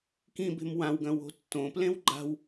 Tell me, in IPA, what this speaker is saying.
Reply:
k ĩ b e̤ m w ã w ɡ ɐ̃ w o̤ tː õ p l ẽ w ɡ͡ǃ a̤ w

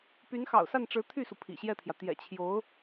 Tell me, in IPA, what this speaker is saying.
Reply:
p y˧˥ n x ɑ̰˨˩ ʊ̯ s a˥˩ n ʈ͡ʂ ɻ̩˧˥ t̪ʰ y˥˩ s u˩ pʰ ḭ˨˩ ɕ j ɛ˥˩ t̪ʰ j ä˩ t̪ j ɛ̰˨˩ t͡ɕʰ j o˧˥ ʊ̯

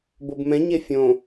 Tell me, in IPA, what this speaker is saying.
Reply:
b o b m ɛ̃ ɲ e fʲ õ

